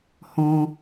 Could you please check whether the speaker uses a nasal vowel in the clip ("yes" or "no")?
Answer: yes